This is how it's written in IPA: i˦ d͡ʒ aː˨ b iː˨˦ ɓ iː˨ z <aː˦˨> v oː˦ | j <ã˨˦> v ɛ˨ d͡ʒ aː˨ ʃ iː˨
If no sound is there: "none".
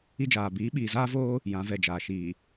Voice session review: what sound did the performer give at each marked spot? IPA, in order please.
aː˦, ã˨˦

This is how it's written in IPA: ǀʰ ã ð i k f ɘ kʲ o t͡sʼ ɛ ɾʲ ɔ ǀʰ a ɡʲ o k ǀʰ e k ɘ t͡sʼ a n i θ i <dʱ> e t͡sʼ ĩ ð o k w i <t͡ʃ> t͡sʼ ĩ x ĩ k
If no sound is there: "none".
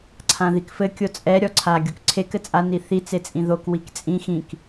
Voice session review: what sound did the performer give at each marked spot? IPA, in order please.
t͡s, k

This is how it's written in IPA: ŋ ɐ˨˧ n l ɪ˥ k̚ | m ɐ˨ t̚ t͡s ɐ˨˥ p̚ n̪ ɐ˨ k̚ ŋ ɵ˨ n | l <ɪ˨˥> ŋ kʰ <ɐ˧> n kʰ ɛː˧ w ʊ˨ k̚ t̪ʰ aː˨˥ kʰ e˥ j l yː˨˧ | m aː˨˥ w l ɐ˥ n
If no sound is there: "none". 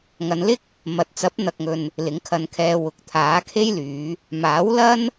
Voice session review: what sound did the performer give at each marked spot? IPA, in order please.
ɪ˨˥, ɐ˧

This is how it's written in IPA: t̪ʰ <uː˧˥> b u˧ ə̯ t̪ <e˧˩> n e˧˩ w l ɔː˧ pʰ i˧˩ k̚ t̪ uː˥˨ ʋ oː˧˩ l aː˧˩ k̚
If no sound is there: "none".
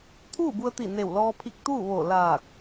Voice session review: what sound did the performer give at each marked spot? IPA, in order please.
uː˥˨, i˧˩

